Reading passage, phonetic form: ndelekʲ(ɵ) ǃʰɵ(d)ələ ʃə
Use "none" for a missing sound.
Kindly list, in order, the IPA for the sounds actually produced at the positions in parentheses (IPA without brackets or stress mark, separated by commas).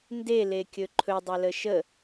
ɵ, dˤ